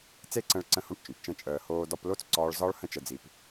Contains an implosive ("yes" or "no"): no